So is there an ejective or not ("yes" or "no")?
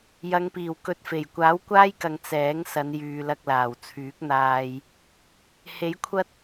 no